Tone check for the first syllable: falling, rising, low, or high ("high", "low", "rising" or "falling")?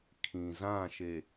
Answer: low